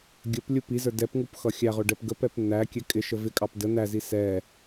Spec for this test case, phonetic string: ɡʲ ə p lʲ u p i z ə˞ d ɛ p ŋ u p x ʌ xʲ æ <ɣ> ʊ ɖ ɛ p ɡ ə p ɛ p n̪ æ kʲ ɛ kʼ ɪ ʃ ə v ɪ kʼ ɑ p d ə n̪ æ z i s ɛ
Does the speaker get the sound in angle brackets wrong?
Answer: yes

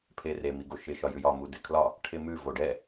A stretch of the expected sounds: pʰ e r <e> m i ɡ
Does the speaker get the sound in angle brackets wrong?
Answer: no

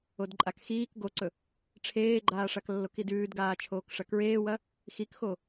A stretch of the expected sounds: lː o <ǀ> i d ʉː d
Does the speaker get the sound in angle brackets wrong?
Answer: yes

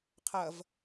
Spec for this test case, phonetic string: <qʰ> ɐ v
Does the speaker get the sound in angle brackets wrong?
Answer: no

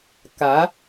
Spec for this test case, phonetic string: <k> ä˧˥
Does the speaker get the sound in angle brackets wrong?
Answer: no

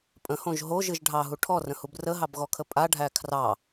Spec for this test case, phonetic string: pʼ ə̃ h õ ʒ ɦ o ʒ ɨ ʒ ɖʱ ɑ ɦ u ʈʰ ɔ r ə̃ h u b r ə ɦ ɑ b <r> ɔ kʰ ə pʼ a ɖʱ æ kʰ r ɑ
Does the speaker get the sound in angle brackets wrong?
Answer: yes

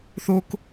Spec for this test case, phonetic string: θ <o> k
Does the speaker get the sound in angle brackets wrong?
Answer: no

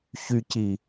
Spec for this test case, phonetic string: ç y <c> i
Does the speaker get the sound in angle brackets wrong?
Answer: no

